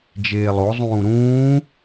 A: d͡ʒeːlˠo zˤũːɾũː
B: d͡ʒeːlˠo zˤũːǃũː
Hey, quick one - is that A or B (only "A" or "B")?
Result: A